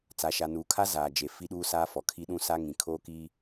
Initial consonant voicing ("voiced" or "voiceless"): voiceless